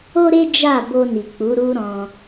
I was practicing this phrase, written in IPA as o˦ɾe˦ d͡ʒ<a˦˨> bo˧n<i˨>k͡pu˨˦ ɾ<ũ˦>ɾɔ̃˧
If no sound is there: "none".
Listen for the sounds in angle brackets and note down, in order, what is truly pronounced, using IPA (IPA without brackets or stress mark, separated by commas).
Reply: a˦˨, i˨, u˦